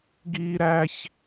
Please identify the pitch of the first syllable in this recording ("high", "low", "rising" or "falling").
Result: high